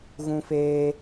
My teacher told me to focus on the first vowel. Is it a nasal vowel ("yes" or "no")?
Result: yes